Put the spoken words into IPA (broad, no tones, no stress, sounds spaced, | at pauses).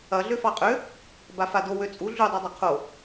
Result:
ɐ ɮ ø f ɑ qʼ ø | b a f a d o w ø t͡sʼ u ɮ u dˤ u dˤ ɐ qʰ o